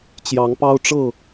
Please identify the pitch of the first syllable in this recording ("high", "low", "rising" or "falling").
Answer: rising